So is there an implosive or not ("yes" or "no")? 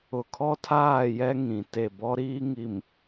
no